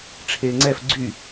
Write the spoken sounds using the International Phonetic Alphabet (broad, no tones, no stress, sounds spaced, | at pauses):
ʈ͡ʂʰ eː ŋ͡ǀ ɛ f ɡ͡ǀ y